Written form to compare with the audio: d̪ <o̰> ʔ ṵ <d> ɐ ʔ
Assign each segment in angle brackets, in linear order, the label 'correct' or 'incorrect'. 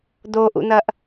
incorrect: o, incorrect: n̪

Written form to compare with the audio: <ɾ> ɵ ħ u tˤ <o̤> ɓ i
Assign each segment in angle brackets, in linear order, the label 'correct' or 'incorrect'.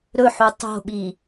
correct, correct

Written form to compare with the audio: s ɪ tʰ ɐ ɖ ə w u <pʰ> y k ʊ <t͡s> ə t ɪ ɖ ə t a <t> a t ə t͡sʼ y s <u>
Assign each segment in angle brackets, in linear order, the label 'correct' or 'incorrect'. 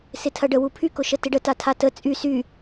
correct, incorrect: ʃ, incorrect: tʰ, incorrect: y

